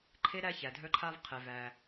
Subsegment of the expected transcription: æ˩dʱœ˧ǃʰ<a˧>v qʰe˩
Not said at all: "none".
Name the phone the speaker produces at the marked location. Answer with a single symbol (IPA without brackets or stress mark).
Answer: a˧